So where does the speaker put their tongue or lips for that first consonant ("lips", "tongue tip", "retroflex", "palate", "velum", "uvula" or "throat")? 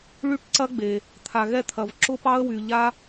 retroflex